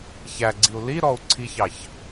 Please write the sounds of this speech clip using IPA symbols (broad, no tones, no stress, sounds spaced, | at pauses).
ç æ ɡ͡ǀ i u̯ l i ɾ ɔ u̯ ǀʰ i ç ɑ ç